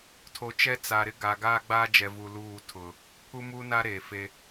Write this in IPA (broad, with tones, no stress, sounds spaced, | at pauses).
tʰ o˨ t͡ʃ ɛ˦ t͡s a˨ ɾ ɪ˦ ɡ a˨ ɡ aː˦ ɡ͡b aː˦ d͡ʒ ɛ˨ v u˨ l uː˦˨ tʰ ʊ˨ | pʰ u˦ m u˦ n a˦ ɾ eː˨ f e˦